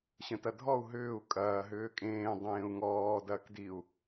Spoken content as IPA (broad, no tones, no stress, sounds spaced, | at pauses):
ɕ ə̃ t ɐ dʱ ɔ u̯ ɦ ʏː u̯ kʼ ɐː ɦ ʏː kʼ ẽː dˤ ẽː u̯ ŋ ɔː d ɐː k d i u̯